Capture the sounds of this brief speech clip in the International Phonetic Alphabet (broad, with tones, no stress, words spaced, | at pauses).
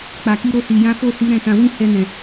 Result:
k͡pa˨ki˧ɾo˧si˨ jã˨˦fo˦˨si˨˦ ɾɛ̃˦˨ tã˧ wĩ˦hɛ˧nɛ̃˨